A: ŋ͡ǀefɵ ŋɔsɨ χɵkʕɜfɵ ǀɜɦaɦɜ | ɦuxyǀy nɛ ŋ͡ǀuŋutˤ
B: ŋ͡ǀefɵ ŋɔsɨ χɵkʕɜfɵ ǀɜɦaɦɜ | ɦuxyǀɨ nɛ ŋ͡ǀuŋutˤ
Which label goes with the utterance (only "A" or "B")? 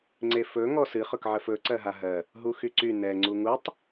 A